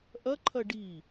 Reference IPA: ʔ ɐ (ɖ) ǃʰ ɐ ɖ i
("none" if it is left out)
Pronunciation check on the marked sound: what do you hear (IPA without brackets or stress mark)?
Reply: none